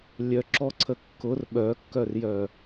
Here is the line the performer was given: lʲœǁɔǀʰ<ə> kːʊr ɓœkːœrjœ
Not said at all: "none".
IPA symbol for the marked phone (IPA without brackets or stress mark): ə